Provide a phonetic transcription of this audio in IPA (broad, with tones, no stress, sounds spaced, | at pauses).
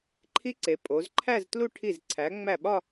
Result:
ǃʰ i˦˥ ǀ e˩˧ pʼ o˩˧ z ǃʰ æ˥˧ z t l u˥˧ ʈʰ i˧˩ z ǀʰ æ˩˧ ŋ͡m æ˧˩ ɓ ɒ˥˧